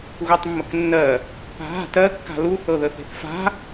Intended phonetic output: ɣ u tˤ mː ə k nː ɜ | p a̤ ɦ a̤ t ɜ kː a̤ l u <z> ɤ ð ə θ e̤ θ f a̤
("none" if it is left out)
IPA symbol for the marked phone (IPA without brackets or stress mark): θ